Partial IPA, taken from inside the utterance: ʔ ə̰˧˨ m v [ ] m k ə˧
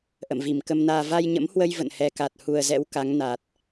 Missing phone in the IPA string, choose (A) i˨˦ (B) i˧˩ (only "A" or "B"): B